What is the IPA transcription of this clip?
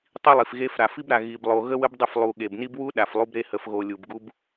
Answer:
tˤ i˦ lˠ i˨ f ɣ e˦ f ɾ a˨ f i˦ b ɾ a˨ ɣ i˨ b lˠ o˨ ɣ ə˦ w ə˦ b dˤ ə˦˨ f lˠ u˨ ɠ e˨ b n i˦ b w u˦ ɗ a˨ f lˠ u˦ b ɾ e˦ h ə˨ f ɣ o˨ lʲ u˨ b ɡ u˦ b

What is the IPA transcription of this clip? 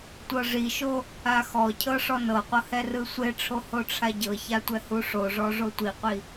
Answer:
tʷ ɤ ʐ i ʃ o | a x ɔ cʰ ɤ ʂ ɔ n ɤ qʷ ɤ h ɛ r ɯ sʷ e ʈ͡ʂʰ o h o ʈ͡ʂʰ a ɟ ɤ ç a tʷ ɛ h u ʂ o ʐ ɔ ʐ o tʷ i qʷ i

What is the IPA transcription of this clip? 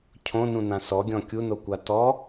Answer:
cʰ õ n ũ n ã s ɔ ɡʲ ɔ̃ kʲ u n o kʷ a t ɔ

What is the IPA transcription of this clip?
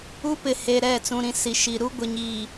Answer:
u˦ p ɪ˨ h e˨ ɾ ɛ˦˨ t͡s ũ˨ ɾ ĩ˨ s i˨ ʃ i˨ ɾ u˦ ɡʷ ɪ˨ ɲ iː˨

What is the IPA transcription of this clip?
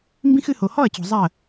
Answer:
m b ĩ˦ x ɨ˧ h o˨ h ɔ˦˨ ɐ̯ t͡ɕ o̤˨ zˤ a˦˨ ɐ̯

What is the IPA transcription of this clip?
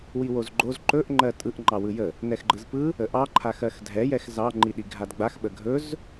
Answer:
w i w o z ɡ͡ǃ o z ǃ ɵ ʔ ŋ͡ǃ ɜ tʼ ɯ ʔ ŋ͡ǃ ɑ w ɯ j ə | n ɛ x ɡ͡ǃ ɯ z p ɯ | ə ʔ ɑ ǃʰ a x ɜ x dʱ ɛ j ɛ x z ɑ ŋ͡ǃ i ɗ i ɡʱ a d ɡ͡b a x ɓ ə ɡʱ ɵ z

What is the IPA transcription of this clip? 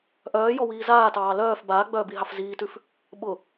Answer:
ʔ œː j ɔ w iː z aː t ɑː l œː f b aː ɡ͡b œː b i ɦ ɑ f z iː t ʉ f | ɓ ʊ

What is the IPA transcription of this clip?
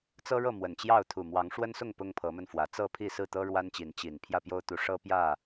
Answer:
t͡s ɤ˦ ɻ ɤ˥˨ m w ə˨˩ n t͡ɕ j ɑ˥˨ ʊ̯ t̪ʰ u˨˩ m w ɑ˨˦ ŋ ʂ w ə˦ n s ʊ˥˨ ŋ p ʊ˦ ŋ pʰ ɤ˨˦ m ə˧ n f w ä˨˩ t͡s ɤ˥˨ pʰ i˥˨ s ɹ̩˥˨ t̪ ɤ˦ ɻ w a˦ n t͡ɕ i˨˦ n t͡ɕ i˨˩ n pʰ j ä˥˨ p j o˦ ʊ̯ t̪ u˨˦ ʂ ɤ˦ p j ä˥˨

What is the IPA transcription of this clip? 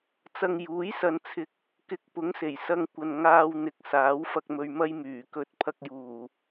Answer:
t͡s ɐ˧ ŋ j uː˨˥ j s ɐ˧ n t͡sʰ ɪ˧ k̚ | k ɪ˧ k̚ p ʊ˨˥ ŋ s e˨˩ j s ɐ˧ ŋ kʷ ɐ˨ n ŋ aː˧ w n̪ ɪ˨ k̚ s aː˨˥ w f ɐ˧ k̚ m ɵ˧ ɥ m ɐ˥ j m yː˨˩ k ɵ˧ t̚ pʰ ɐ˧ k̚ j uː˨˩

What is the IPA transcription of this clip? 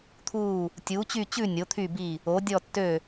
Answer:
t̪ʰ uː˥˧ | tʲ uː˨˥ t͡ɕ y˥˧ t͡ɕ ʉ˥˧ nʲ o˨˥ t̪ʰ y˥˧ b i˥˧ | o˨˥ dʲ ɔ˥˧ tː ø˥˧

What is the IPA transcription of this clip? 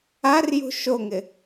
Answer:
a r j ṳ ʃ o ŋ ɪ

